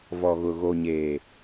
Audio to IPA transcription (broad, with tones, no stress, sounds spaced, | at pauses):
v ɔ˨ ɣ ʊ˨ ɣ o˨ ɲ eː˨